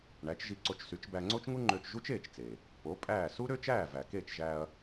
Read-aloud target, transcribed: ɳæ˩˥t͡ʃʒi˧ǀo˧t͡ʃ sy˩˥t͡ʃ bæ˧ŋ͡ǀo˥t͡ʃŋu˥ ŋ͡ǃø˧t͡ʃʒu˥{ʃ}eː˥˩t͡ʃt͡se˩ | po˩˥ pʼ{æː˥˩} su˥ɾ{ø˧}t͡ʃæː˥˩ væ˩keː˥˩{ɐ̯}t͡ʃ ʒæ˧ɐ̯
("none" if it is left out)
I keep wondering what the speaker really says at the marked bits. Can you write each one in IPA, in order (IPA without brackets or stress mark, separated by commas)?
t͡ʃ, æː˥˩, ø˥, none